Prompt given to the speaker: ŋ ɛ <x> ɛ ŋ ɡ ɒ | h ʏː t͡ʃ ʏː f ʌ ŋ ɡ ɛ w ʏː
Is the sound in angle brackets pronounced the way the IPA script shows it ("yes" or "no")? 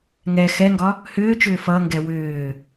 yes